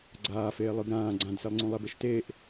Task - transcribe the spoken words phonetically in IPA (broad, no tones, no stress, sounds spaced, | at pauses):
ɡ͡ǀ aː f eː lˠ ɯ ɡ ɾ ãː ɡ͡ǀ ã d s e lˠ ŋ͡ǀ ũ lˠ ɛ b e ʃ t eː ʔ